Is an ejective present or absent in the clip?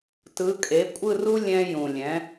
present